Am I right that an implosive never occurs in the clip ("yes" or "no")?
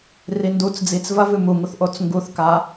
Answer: yes